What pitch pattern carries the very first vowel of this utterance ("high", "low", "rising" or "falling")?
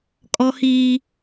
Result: high